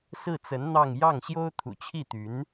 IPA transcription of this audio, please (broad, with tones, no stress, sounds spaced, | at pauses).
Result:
s ɹ̩˥˩ t͡s ə˧˥ n n̪ ɑ˥˧ ŋ j ɑ˥˩ ŋ ɕ j o˥ ʊ̯ t̪ʰ ṵ˨˩ t͡ɕʰ i˥˩ t̪ y˧˥ n